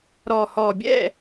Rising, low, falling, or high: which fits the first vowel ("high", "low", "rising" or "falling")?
low